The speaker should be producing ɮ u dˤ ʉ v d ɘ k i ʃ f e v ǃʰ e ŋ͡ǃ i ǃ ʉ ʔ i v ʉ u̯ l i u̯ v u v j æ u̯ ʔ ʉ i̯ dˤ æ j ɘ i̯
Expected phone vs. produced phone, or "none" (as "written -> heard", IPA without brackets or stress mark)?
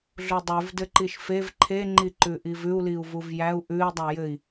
k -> ǃ